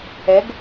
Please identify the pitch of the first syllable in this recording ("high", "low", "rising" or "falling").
rising